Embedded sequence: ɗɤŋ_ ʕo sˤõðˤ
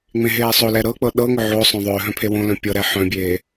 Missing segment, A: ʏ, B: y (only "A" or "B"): A